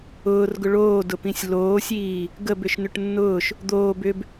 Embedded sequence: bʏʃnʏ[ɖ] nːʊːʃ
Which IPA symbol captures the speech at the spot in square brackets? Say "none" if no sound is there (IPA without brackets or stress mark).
ʈ